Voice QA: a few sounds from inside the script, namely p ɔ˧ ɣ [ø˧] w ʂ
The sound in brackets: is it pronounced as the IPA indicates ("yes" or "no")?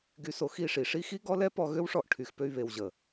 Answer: no